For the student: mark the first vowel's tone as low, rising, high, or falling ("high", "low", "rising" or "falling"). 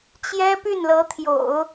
high